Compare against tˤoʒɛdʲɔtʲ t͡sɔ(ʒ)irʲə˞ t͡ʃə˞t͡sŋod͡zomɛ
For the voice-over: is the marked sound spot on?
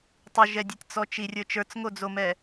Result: no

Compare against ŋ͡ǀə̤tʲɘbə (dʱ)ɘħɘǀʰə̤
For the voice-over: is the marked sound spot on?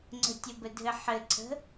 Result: yes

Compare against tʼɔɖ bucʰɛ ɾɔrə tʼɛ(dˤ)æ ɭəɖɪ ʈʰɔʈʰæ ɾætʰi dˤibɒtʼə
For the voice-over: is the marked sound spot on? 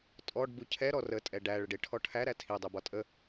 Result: no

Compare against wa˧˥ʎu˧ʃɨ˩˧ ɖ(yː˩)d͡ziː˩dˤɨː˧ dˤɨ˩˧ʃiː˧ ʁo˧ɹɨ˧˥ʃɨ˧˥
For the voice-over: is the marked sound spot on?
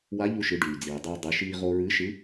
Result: yes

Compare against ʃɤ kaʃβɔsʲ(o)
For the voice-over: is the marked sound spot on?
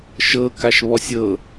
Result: no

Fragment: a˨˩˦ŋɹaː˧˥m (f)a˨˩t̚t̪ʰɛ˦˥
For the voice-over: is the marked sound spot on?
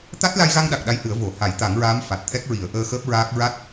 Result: yes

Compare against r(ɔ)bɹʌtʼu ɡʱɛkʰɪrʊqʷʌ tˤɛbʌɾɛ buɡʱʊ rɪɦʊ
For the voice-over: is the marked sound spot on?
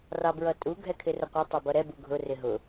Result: no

